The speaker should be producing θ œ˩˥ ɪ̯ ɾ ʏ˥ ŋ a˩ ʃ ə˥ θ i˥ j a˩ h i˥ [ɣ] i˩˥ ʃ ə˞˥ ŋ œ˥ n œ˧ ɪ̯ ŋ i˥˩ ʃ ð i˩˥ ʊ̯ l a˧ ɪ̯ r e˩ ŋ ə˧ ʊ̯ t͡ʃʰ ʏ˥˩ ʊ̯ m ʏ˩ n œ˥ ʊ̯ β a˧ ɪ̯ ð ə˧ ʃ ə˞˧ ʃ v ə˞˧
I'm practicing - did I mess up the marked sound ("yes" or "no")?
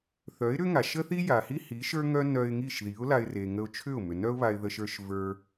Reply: yes